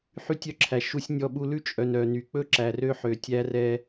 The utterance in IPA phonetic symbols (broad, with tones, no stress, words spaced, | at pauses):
ħy˦tʲœ˦ǁʰæ˨ ʃu˦sʲnʲɔ˦ɓu˦ lʉ˦t͡ʃʼœ˨n œ˨ny˨k͡pɵ˦ ǁæ˨rø˦ħø˨ tʲæ˦rɛ˦